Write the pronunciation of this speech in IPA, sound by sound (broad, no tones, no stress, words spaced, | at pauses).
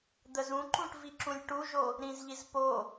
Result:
d̪əzũǃũʈ viǁũlʲʈuʒo | ɾĩzʎiz po